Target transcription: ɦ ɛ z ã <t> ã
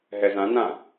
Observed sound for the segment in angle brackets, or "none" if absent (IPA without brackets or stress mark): n